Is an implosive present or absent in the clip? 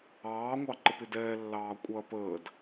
absent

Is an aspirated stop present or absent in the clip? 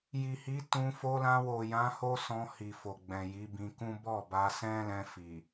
absent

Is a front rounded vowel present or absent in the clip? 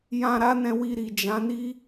absent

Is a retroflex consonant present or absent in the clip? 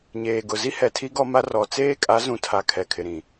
absent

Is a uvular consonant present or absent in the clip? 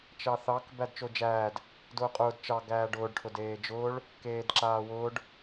present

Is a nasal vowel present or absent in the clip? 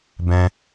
present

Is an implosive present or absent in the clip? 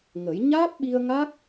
present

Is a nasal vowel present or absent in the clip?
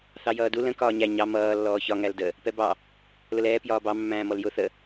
present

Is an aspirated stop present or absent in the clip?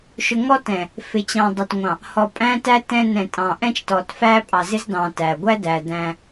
absent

